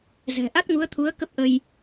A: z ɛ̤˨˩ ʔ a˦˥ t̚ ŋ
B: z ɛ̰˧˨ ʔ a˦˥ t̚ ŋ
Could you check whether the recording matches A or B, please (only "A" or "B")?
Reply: A